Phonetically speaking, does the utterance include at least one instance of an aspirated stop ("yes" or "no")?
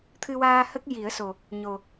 yes